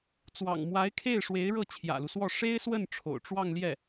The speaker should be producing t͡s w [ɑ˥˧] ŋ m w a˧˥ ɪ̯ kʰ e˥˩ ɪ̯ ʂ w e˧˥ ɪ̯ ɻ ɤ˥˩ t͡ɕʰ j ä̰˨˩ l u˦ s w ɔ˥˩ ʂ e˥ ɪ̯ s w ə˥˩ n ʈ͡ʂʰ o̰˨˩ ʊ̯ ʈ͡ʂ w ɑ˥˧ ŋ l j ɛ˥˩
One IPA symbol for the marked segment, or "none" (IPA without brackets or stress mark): ɑ̰˨˩